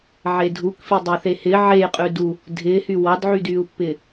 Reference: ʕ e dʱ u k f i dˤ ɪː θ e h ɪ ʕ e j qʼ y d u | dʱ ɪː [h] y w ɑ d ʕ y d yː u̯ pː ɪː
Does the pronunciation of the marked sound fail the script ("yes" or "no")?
no